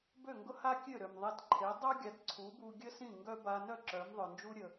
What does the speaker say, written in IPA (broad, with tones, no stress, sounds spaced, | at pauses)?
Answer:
b ø˥˩ ŋ ɡ ʊ˥ h a˥ kʲ ø˥˩ ɾ ø˩ m ðˤ e˧ t ǃʰ e˩˥ dˤ œ˥ ɡʲ a˩˥ t ǀʰ u˩˥ b u˧ ɡʲ ə˥ s ĩ˥˩ ŋ ɡ œ˥ b a˧ n œ˥˩ ǁ œ˩˥ m ðˤ œ˩ n d͡ʒ u˥ ɾʲ ə˩